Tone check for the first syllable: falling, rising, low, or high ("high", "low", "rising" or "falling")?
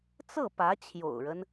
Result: falling